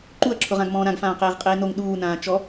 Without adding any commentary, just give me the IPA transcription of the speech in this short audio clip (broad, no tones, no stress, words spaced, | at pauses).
ǃuɐ̯ǁʰʊʁãɡ mɔ̃ːɾãɡfãː qeːʁqʼeːnoŋ ɗuːnãː t͡ʃɔ